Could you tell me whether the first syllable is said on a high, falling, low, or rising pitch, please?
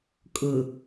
low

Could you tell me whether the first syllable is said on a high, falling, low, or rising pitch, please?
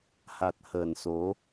low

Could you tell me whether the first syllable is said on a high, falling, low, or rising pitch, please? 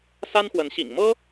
high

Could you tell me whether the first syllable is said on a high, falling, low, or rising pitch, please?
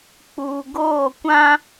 low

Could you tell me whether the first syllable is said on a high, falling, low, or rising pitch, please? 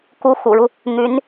rising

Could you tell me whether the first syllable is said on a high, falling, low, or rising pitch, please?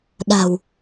low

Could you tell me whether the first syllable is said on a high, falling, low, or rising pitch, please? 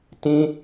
high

